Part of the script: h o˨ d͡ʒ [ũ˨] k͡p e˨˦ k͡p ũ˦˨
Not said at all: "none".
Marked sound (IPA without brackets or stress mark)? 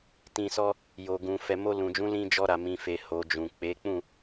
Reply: ũ˨